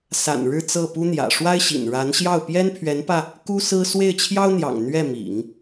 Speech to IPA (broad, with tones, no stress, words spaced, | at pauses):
sa̰˨˩n ɻɻ̩˥˧ t͡sɤ˥˩pu˥n̪jä̰˨˩ ʂwa˥ɪ̯ɕḭ˨˩n ɻa˧˥nɕjɑ˥˩ʊ̯ pjɛ˥n pʰɥɛ˧˥npä˧ | ku˥sɹ̩˥ swe˥˩ɪ̯t͡ɕʰjɑ˥ʊ̯n̪jɑ̰˨˩ŋ n̪ɥɛ˥˩mḭ˨˩˦ŋ